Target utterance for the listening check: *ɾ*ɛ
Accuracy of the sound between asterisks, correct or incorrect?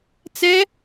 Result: incorrect